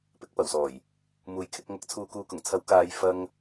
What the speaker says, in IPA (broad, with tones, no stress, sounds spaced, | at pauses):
p ɪ˨˥ k̚ p ɐ˨˩ w s ɔː˨˩ j | m uː˨˩ j kʰ ɪ˨ k̚ ŋ ɐ˨˥ k̚ t͡sʰ uː˨ k uː˨˧ k ʊ˨˩ ŋ t͡sʰ ɐ˨˥ w k aː˨˧ j f ɐ˧ ŋ